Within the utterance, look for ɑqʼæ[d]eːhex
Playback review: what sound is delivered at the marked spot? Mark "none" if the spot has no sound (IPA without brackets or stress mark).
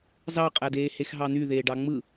d